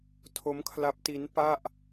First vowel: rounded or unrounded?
rounded